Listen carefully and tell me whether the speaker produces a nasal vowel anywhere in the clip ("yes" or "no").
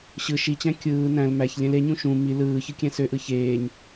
yes